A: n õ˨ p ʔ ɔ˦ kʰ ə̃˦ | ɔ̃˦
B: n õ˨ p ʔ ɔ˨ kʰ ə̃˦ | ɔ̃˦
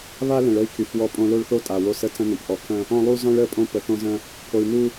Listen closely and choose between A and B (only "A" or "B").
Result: B